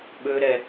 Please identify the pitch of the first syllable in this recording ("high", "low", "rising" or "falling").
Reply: low